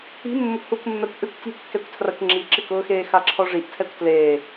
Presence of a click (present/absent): present